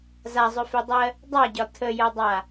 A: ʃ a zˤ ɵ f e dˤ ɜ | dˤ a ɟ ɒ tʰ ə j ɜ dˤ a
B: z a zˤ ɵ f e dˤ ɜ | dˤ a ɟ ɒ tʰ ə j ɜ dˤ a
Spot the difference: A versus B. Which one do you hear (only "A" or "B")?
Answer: B